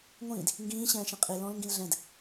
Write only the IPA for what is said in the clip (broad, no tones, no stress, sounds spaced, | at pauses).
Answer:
ŋʷ ĩː d | ŋ ɡ ĩː ɕ ɛ̃ː ʃ ĩ qʼ i l ɔ̃ l ŋ ɡ ĩ l ɮ ɛ̃ d